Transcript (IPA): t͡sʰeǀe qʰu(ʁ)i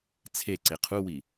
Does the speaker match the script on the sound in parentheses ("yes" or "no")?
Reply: no